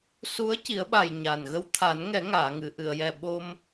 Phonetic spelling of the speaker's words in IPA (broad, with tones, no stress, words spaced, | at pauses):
su˧˥ə̯ci˨˩˦ə̯ɓa˨˩j ɲaː˨˩nɣə˧w t̪ʰa˨˩˦nŋɛ˨˩˦ ŋaː˨˩˨ŋɨ˨˩˨ʔɨ˨˩˨ə̯jɛ˨˩ ɓo˧m